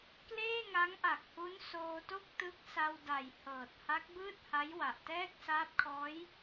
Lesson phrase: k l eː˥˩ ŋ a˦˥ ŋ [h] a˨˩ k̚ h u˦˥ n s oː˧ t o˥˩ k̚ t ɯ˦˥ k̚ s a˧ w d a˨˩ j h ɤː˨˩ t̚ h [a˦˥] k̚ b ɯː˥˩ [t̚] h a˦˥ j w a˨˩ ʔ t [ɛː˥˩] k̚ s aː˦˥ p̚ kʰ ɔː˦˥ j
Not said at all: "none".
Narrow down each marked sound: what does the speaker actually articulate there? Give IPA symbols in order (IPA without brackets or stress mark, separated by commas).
ʔ, a˦˥, t̚, ɛː˥˩